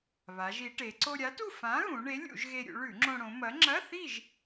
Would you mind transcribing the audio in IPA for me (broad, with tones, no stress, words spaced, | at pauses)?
βa˩˧ʒ i˩˧ʈe˩˧ ǀo˧ɾʲa˨˥tu˥˨ fã˨˥ɣũ˩˧ ɳe˨˥lʲṵ˧˩˧ʒɣe˧ ɾʲṵ˩˧ɭʉ˧˩˧ŋ͡ǁõ˧ ɽõ˩˧mɐ˨˥ ŋ͡ǁɐ˧˥˧θi˥˨ʒ